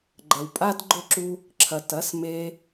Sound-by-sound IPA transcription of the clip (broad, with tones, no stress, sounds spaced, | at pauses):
ɡ͡ǃ ɐ˨ w pʼ a˦ d ɡ͡ǃ ʊ˦˨ ǁ u˧ | ǁʰ ɐ˨ t ɐ˨˦ s m e˧